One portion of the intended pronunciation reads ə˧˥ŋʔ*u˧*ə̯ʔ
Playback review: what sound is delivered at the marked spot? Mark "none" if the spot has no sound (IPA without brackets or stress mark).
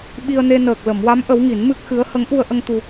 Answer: u˧